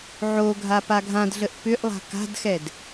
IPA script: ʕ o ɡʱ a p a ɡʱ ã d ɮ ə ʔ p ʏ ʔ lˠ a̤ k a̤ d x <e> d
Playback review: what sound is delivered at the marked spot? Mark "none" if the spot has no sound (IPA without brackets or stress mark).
ɛ